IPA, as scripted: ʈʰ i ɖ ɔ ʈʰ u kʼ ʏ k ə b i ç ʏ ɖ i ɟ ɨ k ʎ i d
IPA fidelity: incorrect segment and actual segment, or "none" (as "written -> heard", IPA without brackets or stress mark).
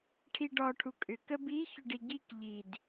ɨ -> i